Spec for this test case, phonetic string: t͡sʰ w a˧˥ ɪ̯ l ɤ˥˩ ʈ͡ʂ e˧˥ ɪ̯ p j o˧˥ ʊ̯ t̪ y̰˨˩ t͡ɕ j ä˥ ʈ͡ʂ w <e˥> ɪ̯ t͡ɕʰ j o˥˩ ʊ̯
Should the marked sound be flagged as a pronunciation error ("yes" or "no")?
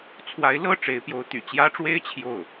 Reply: no